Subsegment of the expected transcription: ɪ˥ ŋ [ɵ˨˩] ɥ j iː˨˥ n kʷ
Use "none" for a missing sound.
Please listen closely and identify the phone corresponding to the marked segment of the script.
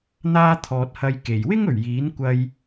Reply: ɵ˨˩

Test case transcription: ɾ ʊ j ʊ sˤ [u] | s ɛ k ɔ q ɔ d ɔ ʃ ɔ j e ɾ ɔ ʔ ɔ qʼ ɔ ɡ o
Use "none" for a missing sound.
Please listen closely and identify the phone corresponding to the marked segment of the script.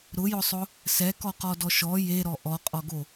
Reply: ʊ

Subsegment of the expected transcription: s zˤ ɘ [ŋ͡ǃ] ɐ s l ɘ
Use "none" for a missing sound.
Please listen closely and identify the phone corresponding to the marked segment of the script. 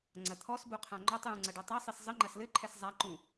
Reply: ŋ͡ǃ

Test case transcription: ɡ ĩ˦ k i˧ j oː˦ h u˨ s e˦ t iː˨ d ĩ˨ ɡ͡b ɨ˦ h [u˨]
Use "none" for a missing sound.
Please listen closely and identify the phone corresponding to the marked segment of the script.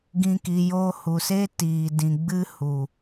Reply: u˨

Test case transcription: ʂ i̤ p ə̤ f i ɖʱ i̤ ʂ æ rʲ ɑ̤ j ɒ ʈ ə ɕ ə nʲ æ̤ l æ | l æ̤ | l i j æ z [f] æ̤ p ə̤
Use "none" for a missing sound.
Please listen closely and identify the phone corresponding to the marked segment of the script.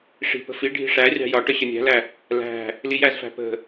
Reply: f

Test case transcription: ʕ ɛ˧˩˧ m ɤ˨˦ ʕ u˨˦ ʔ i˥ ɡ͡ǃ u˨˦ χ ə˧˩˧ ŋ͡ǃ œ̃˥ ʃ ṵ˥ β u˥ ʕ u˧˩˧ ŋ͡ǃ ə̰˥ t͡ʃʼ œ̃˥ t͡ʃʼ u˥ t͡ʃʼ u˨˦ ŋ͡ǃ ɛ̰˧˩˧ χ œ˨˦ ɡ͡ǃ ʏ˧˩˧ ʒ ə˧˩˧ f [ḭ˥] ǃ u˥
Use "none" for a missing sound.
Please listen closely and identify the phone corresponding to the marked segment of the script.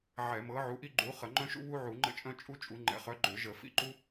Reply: ḭ˥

